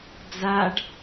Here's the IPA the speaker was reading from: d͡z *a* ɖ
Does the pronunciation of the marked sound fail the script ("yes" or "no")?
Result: no